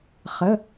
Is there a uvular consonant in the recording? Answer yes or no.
yes